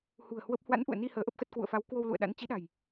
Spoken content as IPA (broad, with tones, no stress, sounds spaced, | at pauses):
h ṳ˨˩ ə̯ h w ə˦˥ p̚ h w a̰˧˥ n ʔ ṵ˧˨ ə̯ n i˧ h əː˨˦ ʔ ə˦˥ p̚ x ə˦˥ t̚ k w ṵ˧˨ ə̯ f a˨˦ w k w o˧ w l ṵ˧˨ ə̯ ɗ a̰˧˥ n t͡ɕ i˨˦ ɗ a̤˨˩ j